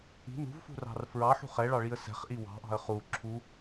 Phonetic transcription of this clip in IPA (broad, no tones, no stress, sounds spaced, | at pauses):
i̤ n ṳ v f ṳ r ɑ̤ r f ɹ ɑ ħ ṳ χ ɛ ɭ ɑ ɭ i ə̯ s ɛ̤ χ ʔ i w ɑ̤ ʔ ɑ̤ ə̯ χ u ǁʰ u